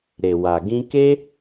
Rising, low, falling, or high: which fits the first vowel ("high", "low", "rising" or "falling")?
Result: low